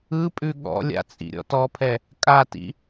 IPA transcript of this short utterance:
ɯ pʼ ʉ ɠ ɔ̰ lʲ a̰ t͡sʼ ḭ ɾʲ ɔ̰ t ɔ pʰ ɛ | kʼ a t ḭ

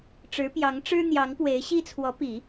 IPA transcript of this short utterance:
ʈ͡ʂ ɻ̩˧˥ p j ɑ˧˥ ŋ ʈ͡ʂ ɻ̩˥ n̪ j ɑ˧˥ ŋ p w e˧˥ ɪ̯ ɕ i˥ t͡sʰ w ɔ˧˥ p i˨˩˦

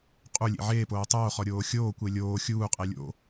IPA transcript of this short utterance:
qʼ u lʲ ḛ ʕ eː p oː tˤ oː χ ɔ ɾʲ oː xʲ oː kʷ e lʲ oː xʲ uː qʼ e lʲ o̰

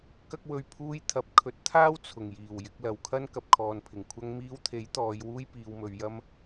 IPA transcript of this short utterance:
k ɐ˥ k̚ w ɵ˧ ɥ pʰ uː˧ j t̪ʰ ɐ˨˥ p̚ kʰ ɵ˨˥ t̚ t̪ʰ aː˥ w t͡sʰ ʊ˨˩ ŋ j iː˨˩ w j ɪ˨˥ k̚ l ɐ˨ w kʰ ɐ˥ n k ɐ˨ p̚ kʰ ɔː˨ n pʰ ɪ˨˩ ŋ kʷʰ ɐ˧ ŋ m iː˧ w t̪ʰ e˨˥ j t̪ ɔː˨˧ j w uː˥ j p iː˨˧ w m ɵ˨˧ ɥ j ɐ˧ m

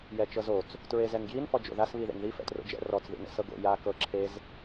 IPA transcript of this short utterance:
j ɛ t͡ʃ ɤ z o t͡s | t ɹ e z ɛ n ɡ j i n f ɔ d͡ʒ o̰ ð a s β i ð ḛ ŋ ð i f ɛ̰ t r o̰ d͡ʒ ɛ̰ r ɔ t͡s ð ḭ n ɛ̰ s ɤ ɡ o̰ j a k ɤ ǁʰ e z

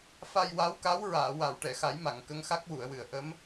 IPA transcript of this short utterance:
f a˧ j w a˧˥ w k a˧˥ w ɹ aː˨˩˨ w a˨˩˨ w ʈ ɛ˨˩˨ x a˨˩˦ j m a˨˩˨ ŋ k ə˧˥ ŋ x a˦˥ k̚ w u˨˩˨ ə̯ w ɨ˨˩˨ ə̯ ʔ ə˧˥ m

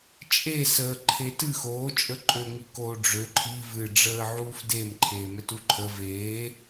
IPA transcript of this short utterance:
t͡ʃʼ e s əː ǃʰ e t ɨ x oː t͡ʃʼ ə ǃʼ ø ŋ i k oː ɖ͡ʐ ø ǃʰ i v ɨ ɖ͡ʐ əː ʕ uː f d e m ǃʰ eː m ɛ t u ǃʰ ə v eː

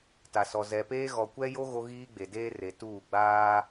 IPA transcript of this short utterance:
t a˨ s ɔ˨ z ɛ˨ p eː˦ ɣ ɔ˨ kʷ ɛ˦ j o˦ ɣ o˦ ɣ iː˦ ɡ͡b e˨ d eː˦ r e˨ t uː˦˨ ɡ͡b aː˦

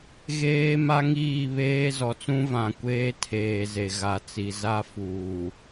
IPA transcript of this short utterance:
ɣ eː˦ m a˦ ŋ iː˦˨ β eː˦ z ɔ˨ t͡s ũ˦ v ã˨ kʷ eː˦ tʰ eː˨ z e˨ ɣ a˨ t͡s i˨ z a˦ f uː˨

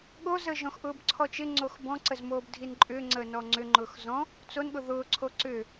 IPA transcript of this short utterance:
ɠ o z əː ʒ ɔ̃ x ʔ ʊː b ǀʰ ɔ t͡ʃ ɪ ŋ͡ǀ o x b ɔ̃ ǀ ə z m oː b dʱ i n ǃʼ ʏː ŋ͡ǀ əː n ɔ ŋ͡ǀ ʏ ŋ͡ǃ ʊː x z ɔ̃ | t͡s o n ɠ ʊ ð ʊː ǀʰ o ǀ ʏ

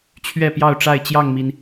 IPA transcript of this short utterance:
t͡ɕʰ ɥ ɛ˥˨ p j ɑ˥˨ ʊ̯ ʈ͡ʂ a˥˨ ɪ̯ t͡ɕ j ɑ˥˨ ŋ m i˩ n

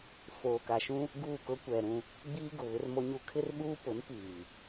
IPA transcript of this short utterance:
f oː˨ k a˨ ʃ ũ˦ | ɡ uː˦˨ k ʊ˦ kʷ ɛ˨ ɾ ũ˦ | ɡ͡b iː˦ ɡ ʊ˨ β ɪ˦ r m o˦ ɲ u˦ kʰ ɪ˦ r ɓ uː˦ p ʊ˨˦ n p iː˨

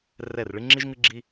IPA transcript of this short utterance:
r ɛ˦˨ r ɭ ɨ˦ ŋ͡ǁ i˦ ʒ ŋ ɨ˦ ɡ͡ǁ i˦

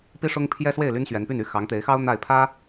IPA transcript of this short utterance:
p i˥ ʂ ʊ˥ ŋ pʰ j ɛ˥ s w e˥˩ ɪ̯ l y˥ n ɕ ɥ ɛ˧˥ n p y˥˩ n y˥ x ɑ˧˥ ŋ t̪ e˧˥ ɪ̯ x ɑ˥ ʊ̯ n̪ a˥˩ ɪ̯ pʰ ä˥

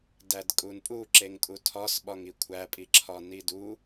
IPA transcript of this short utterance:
d æ d kʼ u n pʼ u ǁ e ŋ tʼ u tʰ ɒ s ɓ ɒ ŋ i kʷʰ æ pʼ i ǁʰ ɒ n i d u

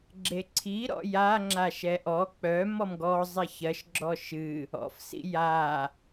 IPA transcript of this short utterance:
ɡ͡ǁ e ǀʰ i ɾ ɔ̰ j a ŋ͡ǁ a ʃ ɛ ʔ ɔ k͡p œ m ɔ m ɡ ɔ zˤ e ç ɜ ʃ ɡ͡ǁ ɔ ʃ ɨ | ɔ̰ f s ḭ j a

